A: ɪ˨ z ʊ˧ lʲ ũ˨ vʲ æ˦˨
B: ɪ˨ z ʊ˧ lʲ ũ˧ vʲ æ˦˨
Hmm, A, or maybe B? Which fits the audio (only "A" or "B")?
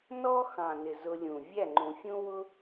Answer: A